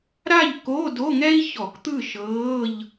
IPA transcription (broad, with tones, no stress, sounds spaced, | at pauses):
ɾ a˥˨ ʎ k o˧˥˧ d o˧˥˧ ŋ ɛ˥ i̯ ç ɔ˧˩˧ k t̪ ɯ˥˨ ʃ ɤː˧˥˧ ʎ